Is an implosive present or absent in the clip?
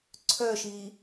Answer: absent